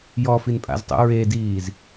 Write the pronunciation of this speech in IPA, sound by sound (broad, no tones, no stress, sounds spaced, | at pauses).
j ɔ f i n pʼ a̰ z tˤ ṵ ɹ e d iː z